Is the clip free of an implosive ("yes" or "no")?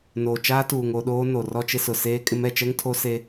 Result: no